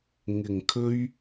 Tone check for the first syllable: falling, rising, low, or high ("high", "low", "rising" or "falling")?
low